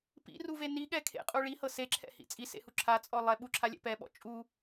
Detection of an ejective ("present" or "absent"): present